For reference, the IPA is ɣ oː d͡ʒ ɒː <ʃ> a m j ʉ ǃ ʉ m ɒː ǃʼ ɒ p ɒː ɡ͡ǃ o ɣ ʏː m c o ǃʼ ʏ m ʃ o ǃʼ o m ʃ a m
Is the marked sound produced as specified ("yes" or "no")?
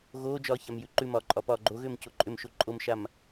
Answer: no